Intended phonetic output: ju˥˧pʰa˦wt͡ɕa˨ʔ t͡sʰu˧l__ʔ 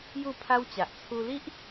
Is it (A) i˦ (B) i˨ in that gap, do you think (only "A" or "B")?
A